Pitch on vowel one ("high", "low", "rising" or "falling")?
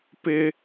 high